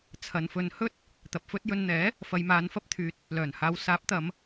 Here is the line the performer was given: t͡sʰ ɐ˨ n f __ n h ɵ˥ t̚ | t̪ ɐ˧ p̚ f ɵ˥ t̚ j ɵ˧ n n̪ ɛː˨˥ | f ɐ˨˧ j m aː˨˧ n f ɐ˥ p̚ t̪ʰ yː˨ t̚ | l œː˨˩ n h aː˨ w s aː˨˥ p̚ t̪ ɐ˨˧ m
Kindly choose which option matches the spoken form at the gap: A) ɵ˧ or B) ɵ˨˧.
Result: A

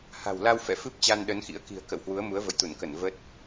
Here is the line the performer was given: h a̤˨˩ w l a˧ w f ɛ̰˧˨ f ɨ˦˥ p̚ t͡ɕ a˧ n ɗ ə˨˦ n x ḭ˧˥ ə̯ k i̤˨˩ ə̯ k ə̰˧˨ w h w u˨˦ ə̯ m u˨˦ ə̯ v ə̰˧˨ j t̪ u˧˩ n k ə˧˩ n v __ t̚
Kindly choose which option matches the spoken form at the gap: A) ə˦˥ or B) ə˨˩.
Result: A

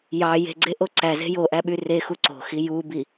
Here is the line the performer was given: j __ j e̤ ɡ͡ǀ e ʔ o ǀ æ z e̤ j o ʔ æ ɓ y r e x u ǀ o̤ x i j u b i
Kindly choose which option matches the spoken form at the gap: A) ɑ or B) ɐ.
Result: A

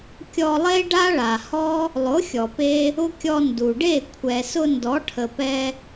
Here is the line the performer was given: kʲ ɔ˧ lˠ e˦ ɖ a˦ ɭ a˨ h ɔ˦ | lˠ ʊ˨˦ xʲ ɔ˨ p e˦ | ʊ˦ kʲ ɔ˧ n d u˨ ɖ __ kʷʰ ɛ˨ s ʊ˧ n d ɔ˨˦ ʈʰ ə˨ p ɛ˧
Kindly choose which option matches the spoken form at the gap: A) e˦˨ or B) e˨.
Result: A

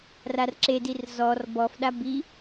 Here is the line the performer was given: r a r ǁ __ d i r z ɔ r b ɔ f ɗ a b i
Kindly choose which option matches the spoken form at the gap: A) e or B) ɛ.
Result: A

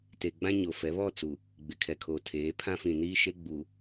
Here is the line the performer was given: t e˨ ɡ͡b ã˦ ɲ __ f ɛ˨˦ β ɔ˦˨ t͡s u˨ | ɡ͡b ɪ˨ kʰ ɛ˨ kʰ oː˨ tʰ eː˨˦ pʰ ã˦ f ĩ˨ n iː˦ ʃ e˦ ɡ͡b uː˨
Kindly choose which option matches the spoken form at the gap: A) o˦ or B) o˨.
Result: B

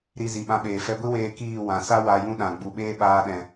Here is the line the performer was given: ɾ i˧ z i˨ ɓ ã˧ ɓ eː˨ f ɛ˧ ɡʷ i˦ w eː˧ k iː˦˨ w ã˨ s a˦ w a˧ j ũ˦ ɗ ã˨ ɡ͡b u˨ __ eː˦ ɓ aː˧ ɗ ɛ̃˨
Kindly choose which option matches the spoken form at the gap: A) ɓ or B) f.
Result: A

